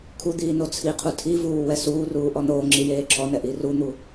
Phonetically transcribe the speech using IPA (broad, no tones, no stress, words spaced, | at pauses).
kʰud̪iː not͡sʰiqʰu tʰivuː wɛsuːruː ʔɔnoːŋ͡ǁi jeːǁʰɔnɛ ʔirun̪u